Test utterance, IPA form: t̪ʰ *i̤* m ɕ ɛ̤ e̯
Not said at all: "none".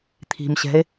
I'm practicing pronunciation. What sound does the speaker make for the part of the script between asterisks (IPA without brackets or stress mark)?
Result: i̤